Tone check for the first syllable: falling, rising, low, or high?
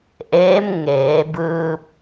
rising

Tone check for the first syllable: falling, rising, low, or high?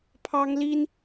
high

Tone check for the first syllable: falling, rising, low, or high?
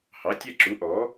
rising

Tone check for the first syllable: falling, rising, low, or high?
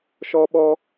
high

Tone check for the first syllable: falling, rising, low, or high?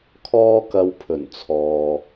high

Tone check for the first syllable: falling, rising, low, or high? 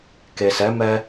low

